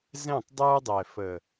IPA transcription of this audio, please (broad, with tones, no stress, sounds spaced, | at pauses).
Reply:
z ɛ̃˦˨ tˤ dˤ ə˞˦ dˤ ɛ˨ f ə˨